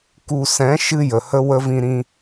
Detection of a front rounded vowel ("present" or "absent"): absent